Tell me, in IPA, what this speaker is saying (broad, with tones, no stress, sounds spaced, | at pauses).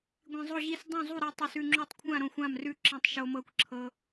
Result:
ɡʷ ĩ˧ zˤ o˥˧ ʑ i˥˧ s dˤ õ˥˧ zˤ u˥˧ ɾ i˧ tˤ ʉ˧ s ʉ˥˧ ŋ͡ǁ o˥˧ tˤ kʷʰ ã˥˧ ɾ õ˥˧ xʷ ã˥˧ m r ʉ˥˧ ǁ ĩ˧ tˤ ʃ o˧ m ɤ˧ kʷ ǁʰ ɤ˧